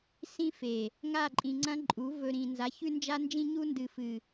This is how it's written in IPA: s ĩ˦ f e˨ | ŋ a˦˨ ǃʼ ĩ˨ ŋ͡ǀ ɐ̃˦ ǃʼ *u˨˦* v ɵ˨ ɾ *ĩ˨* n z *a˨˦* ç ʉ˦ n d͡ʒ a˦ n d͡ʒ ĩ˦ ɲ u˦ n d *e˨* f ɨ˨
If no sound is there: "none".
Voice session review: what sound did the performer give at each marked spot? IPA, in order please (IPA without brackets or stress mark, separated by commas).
u˨˦, ĩ˨, a˨˦, ɨ˨